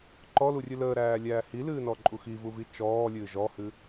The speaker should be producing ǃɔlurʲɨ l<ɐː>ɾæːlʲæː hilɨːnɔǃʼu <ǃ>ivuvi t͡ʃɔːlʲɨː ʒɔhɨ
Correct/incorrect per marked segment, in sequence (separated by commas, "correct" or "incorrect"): incorrect, incorrect